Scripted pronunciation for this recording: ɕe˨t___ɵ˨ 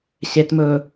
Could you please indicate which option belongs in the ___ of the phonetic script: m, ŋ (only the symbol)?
m